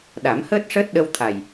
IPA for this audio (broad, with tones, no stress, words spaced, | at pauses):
ɗa˨˩˦mhəː˦˥t̚ʂəː˦˥t̚ ɗə˧wt̪ʰa˨˩j